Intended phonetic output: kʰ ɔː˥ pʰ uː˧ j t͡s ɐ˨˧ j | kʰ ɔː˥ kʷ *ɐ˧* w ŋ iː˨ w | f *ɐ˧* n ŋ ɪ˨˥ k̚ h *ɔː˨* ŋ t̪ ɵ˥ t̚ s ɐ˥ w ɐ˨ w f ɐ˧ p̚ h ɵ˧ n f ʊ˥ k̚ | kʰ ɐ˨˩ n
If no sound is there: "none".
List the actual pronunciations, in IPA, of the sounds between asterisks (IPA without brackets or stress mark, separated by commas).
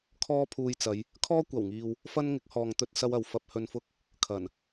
ɐ˨˩, ɐ˥, ɔː˨